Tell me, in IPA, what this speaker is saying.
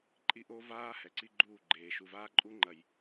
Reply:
ǃʼi˦ʔo˦vaː˦ hɛ˨ǀi˦ ɡ͡ǃuː˦˨ɡ͡ǃeː˨ ʃu˨vaː˦ǃʼu˦ŋ͡ǃɐ˨j

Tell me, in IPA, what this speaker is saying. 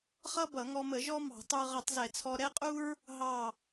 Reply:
χʌ˥bʌ˧˩˧ŋɔ˧mə˧˩˧ ʒɔ˥mɑ̤˧˩˧tˤə˞˧ ʁʌ˧˩˧tˤzɛ˧˩˧t͡sʰɔ˧ ɾɛ˥qʼu˥ɹ | ɦɑ˧˩

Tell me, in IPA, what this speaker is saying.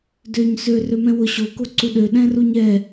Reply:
døɲ sø rømɛ̃wʊ ɕo koǀuɗø ɗɛ̃ruɲɛ

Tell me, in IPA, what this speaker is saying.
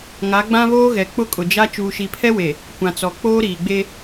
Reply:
ŋa˨˦ɡ͡bã˦βoː˦ɣɛ˨ k͡pʊ˦kʼʊ˨d͡ʒa˦ t͡ʃuː˨ʃi˨pʰɛ˦we˨ | kʷã˨t͡sɔ˨ k͡poː˦ɾiː˨ɡ͡be˦

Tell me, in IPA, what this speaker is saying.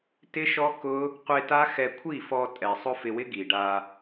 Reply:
tɪ˦ʃɔ˦kʊ˦ | qʷe˧ta˦xɛ˧ kʷʰi˦˨fɔ˧ tʼɛ˨sˤʊ˦fɪ˧wɪ˦ ɡi˨ɖa˧

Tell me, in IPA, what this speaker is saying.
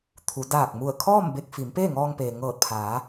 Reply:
t̪ʰu˩˧ daː˧˩k̚mu˧˩ə̯kʰɔː˥˨m be˧k̚ fi˩˧m peː˥˨ŋɔː˧ŋpeː˩ ŋɤː˧˩t̚pʰaː˩˧

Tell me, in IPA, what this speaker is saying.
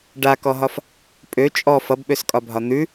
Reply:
ɖakɔɦɒf | pʼø t͡ʃʼɔ fʌbɓøskʼɒbʱɒ n̪ʉ

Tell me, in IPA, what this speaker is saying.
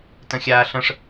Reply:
tə̃xʲaːɬə̃ʂ

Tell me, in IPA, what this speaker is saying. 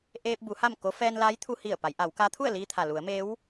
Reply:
ʔeː˧p̚bu˩˧ ha˥˨mko˧˥ fɛː˧nlaː˧˥jt̪ʰu˧hi˧˩ə̯ pa˩˧jʔa˩˧wka˧˥ t̪ʰu˥˨ə̯li˧t̪ʰa˩ lu˩˧ə̯meː˧˥w

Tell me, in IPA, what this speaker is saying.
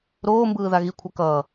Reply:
ɾoːmbɯː ðaɣikʷʰa kʌː

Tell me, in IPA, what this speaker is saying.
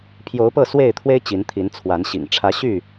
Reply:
pʰjo˨˦ʊ̯pɤ˥˨swe˥˨ɪ̯t̪ʰwe˦ɪ̯ t͡ɕi˨˦nt̪ʰi˨˦n t͡sʰwa˨˦nɕḭ˨˩ŋ ʈ͡ʂʰä˨˦ɕy˥˨

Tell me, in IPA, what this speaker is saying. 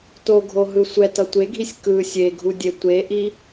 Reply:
toɡʱo ɦɯsʷɛtʌ tʷeɡʱisʲ kɯ sʲeɡʱu dʲetʷeʔi

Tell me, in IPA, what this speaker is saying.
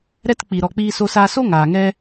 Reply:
ɾɛ˦t k͡pi˨ ɾɔ˧k͡piː˦so˦saː˦ so˦ŋaː˨ŋɛ˧

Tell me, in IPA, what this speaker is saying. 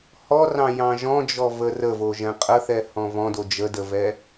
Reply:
hɔrɑ̃ jɑ̃ʒɔ̃d͡ʒɔ vərəvo ʒɛ̃qʼəθɛ hɔ̃vɔ̃ dod͡ʒədəvɛ

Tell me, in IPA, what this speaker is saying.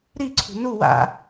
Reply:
ɾiǀʰṳ nu wa̰

